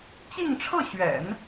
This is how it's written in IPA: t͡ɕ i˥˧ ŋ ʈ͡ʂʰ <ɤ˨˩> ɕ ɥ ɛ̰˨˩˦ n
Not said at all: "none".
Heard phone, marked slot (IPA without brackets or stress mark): ɤ˥˩